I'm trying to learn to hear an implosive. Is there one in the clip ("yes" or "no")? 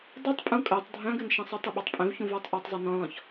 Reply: yes